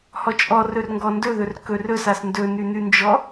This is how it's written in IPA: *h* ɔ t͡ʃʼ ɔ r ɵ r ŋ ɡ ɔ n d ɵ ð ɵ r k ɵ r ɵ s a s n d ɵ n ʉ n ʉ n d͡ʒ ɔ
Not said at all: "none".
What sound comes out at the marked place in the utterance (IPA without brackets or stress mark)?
h